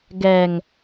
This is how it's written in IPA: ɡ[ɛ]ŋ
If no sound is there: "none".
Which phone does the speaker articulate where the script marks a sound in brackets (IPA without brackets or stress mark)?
ɛ